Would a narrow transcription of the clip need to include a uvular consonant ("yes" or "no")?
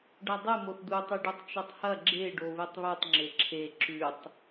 no